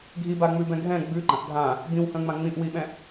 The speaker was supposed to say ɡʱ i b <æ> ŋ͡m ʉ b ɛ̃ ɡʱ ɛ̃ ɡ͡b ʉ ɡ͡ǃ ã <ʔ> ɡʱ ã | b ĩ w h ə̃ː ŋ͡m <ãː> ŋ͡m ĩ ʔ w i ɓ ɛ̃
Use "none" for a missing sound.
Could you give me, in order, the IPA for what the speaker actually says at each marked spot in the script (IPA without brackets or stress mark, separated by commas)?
a, ʔ, ã